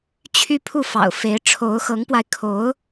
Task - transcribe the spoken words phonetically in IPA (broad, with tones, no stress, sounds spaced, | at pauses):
t͡ɕʰ y˥ pʰ u˥˩ f ɑ̰˨˩ ʊ̯ f e˧˥ ɪ̯ ʈ͡ʂʰ o˧˥ ʊ̯ x ɤ˧˥ ŋ p w a˧ ɪ̯ kʰ o˧˥ ʊ̯